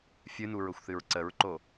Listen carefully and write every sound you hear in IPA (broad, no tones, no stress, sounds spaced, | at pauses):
fʲ ɨ n u ɹ ʊ xʷ θ ɨ ɹ ǀ ə ɹ ǃ o